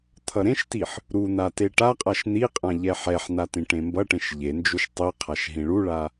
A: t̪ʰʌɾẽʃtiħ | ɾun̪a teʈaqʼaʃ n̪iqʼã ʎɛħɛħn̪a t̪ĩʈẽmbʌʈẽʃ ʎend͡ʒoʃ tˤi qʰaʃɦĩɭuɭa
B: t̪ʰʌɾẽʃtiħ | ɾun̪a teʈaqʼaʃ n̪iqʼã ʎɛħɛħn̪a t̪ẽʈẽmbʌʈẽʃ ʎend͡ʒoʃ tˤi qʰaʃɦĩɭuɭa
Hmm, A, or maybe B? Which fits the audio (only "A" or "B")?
A